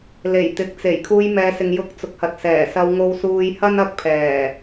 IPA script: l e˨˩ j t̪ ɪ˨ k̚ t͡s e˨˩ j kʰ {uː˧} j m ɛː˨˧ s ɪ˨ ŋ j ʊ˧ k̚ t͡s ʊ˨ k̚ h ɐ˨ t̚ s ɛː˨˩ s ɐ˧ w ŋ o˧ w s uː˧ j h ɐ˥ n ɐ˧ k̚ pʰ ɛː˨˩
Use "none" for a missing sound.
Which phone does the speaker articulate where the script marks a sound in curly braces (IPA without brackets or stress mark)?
uː˧